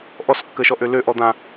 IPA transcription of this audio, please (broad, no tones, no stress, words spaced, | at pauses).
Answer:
ʔɔskːəʃɔ ʔølø ʔɔd̪ã